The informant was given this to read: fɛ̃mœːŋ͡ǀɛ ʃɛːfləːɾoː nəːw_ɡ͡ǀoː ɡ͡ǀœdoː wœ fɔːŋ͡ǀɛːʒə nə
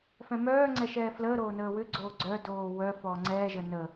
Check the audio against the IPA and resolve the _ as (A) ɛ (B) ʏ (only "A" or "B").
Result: B